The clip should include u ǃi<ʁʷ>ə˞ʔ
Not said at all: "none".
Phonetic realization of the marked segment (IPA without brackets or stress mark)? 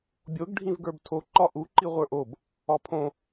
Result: ʁʷ